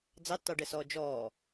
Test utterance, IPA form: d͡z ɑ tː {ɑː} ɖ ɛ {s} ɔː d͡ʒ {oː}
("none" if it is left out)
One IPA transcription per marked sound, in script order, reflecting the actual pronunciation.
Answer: ɑ, s, ɔː

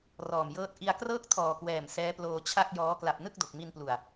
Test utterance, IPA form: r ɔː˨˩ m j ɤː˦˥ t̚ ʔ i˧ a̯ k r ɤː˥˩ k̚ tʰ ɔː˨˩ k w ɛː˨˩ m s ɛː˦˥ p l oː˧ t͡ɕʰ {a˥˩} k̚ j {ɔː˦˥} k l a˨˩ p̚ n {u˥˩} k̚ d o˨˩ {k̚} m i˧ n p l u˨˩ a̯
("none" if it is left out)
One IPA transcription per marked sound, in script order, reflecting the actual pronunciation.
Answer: a˥˩, ɔː˦˥, ɯ˥˩, k̚

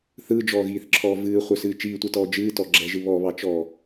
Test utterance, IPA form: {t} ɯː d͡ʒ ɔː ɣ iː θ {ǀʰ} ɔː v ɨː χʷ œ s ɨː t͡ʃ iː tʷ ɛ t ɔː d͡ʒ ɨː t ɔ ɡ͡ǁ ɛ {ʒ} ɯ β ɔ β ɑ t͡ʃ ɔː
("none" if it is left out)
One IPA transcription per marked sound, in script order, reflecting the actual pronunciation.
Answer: θ, ǁʰ, ʒ

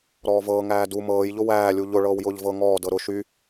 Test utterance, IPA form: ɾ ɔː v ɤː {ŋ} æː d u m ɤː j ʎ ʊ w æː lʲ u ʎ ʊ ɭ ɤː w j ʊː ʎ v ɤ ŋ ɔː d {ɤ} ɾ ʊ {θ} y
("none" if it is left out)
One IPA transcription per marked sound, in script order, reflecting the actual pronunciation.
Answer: ŋ, ɤ, ʃ

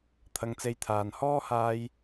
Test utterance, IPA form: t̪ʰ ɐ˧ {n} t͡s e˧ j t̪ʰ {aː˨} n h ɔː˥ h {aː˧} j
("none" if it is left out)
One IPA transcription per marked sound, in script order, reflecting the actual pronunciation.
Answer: ŋ, aː˨, aː˧

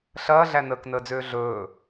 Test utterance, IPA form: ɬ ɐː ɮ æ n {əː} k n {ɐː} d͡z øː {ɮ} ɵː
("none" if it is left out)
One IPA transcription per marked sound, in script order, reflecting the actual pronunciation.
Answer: əː, əː, ɮ

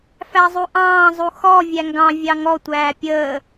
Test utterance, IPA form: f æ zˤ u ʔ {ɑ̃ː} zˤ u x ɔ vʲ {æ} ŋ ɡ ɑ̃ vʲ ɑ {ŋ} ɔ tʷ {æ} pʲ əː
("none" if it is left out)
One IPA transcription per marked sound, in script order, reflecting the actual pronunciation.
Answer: ɑ̃ː, æ, ŋ, æː

